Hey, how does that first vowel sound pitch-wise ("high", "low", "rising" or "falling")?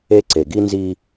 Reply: high